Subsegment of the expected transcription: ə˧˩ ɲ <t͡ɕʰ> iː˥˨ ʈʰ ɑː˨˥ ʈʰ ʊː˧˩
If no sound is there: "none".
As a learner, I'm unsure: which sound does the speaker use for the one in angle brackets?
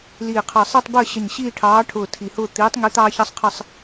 ɕ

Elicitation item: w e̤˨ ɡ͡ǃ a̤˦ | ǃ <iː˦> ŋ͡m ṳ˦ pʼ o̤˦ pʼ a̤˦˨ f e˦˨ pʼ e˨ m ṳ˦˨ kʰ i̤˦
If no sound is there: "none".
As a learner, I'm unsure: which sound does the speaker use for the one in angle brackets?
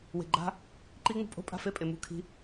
iː˦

